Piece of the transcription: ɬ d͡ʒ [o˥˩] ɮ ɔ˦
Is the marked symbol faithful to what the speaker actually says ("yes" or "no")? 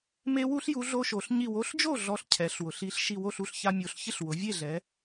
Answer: yes